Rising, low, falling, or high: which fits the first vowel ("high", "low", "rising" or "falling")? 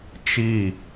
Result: falling